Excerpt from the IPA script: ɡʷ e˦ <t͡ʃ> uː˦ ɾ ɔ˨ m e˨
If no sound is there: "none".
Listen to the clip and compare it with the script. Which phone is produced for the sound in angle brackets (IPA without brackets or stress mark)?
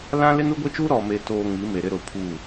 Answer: t͡ʃ